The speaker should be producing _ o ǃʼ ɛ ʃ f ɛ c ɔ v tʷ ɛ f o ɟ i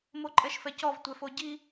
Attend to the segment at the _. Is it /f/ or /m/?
m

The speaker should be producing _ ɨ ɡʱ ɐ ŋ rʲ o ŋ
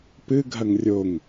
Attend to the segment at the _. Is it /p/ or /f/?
p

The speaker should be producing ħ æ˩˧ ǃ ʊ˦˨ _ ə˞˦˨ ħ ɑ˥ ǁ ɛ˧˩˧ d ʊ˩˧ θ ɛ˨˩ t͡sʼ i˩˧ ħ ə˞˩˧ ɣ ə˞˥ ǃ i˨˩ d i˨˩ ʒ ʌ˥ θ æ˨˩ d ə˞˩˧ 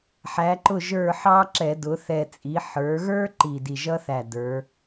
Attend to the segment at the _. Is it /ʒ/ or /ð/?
ʒ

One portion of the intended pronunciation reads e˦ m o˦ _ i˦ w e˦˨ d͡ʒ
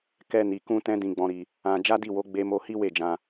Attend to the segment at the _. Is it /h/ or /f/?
h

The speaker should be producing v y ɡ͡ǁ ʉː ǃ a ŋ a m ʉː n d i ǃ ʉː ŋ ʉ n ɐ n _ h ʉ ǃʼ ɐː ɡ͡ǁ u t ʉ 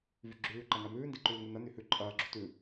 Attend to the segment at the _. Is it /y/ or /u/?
y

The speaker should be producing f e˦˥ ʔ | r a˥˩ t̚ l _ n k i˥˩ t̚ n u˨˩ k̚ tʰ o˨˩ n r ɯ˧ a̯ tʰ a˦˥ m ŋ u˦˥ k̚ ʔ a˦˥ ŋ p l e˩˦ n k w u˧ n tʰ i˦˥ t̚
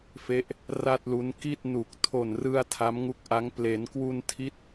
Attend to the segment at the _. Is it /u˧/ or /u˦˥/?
u˦˥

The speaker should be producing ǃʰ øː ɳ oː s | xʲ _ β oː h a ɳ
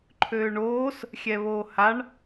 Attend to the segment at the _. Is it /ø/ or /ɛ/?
ɛ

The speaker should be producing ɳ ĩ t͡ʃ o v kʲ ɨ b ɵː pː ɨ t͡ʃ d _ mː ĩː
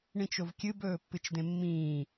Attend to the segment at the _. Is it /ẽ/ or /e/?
ẽ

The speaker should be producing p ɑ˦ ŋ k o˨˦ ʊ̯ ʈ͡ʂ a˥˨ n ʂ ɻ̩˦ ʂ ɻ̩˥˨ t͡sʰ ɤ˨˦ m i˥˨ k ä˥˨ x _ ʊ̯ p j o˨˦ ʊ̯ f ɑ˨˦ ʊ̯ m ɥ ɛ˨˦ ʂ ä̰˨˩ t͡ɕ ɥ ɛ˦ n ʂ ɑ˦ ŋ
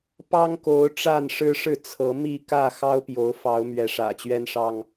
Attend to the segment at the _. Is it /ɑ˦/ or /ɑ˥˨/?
ɑ˦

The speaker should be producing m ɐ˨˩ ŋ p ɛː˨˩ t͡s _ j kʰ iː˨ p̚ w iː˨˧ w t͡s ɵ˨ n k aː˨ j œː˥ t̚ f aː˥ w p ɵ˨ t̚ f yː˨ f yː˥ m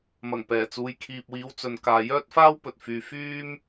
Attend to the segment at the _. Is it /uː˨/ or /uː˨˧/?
uː˨˧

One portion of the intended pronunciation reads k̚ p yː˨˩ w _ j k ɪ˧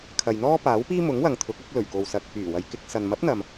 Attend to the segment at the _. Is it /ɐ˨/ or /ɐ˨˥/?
ɐ˨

